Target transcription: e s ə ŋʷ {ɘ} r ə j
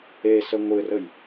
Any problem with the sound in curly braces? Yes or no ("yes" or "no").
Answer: no